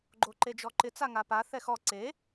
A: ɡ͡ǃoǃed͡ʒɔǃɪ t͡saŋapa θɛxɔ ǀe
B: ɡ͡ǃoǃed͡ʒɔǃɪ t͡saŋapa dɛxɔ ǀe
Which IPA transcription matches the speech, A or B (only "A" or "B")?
A